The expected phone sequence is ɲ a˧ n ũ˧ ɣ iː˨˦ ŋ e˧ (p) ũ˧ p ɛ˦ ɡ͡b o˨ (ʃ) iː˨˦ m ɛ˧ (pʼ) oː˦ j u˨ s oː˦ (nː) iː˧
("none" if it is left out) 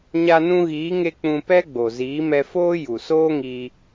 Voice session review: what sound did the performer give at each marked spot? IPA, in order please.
k͡p, z, f, ŋ

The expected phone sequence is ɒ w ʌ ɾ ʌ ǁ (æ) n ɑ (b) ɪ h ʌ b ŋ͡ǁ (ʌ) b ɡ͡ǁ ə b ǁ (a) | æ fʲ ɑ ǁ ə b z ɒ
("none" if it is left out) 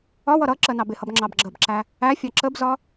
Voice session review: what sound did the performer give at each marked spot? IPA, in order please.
ɜ, b, ɑ, æ

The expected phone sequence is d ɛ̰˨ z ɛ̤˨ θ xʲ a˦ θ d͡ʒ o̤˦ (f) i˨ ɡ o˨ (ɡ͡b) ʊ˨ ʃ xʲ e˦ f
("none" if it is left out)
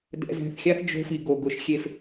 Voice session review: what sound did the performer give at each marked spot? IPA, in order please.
f, ɡ

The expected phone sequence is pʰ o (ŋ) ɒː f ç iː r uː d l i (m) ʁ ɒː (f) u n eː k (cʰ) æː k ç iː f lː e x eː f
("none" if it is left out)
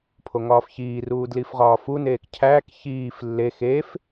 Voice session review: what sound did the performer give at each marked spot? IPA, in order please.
ŋ, f, f, cʰ

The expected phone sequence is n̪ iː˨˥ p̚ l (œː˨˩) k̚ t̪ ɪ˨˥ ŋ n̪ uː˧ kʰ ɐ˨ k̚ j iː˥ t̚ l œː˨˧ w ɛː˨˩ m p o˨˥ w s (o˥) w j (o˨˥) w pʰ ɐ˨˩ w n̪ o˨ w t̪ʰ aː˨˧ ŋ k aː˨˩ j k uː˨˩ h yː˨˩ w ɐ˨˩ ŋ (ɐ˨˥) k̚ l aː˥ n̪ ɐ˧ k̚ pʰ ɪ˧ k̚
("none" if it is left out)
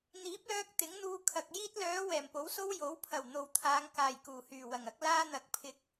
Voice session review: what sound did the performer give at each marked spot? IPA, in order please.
œː˧, o˥, o˨˥, ɐ˨˥

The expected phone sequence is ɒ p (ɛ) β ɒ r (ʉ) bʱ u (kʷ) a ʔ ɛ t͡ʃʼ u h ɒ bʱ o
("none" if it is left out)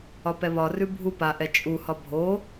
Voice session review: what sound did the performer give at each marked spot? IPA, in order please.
ɛ, ʉ, p

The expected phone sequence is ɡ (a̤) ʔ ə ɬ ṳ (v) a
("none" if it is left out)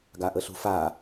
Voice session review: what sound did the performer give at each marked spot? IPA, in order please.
a, f

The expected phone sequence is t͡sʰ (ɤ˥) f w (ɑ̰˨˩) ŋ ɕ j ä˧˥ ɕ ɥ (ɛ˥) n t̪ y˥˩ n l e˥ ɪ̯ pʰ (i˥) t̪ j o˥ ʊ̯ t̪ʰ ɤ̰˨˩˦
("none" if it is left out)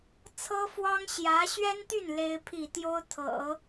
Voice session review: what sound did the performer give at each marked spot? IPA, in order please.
ɤ˥, ɑ˥, ɛ˥, i˥˩

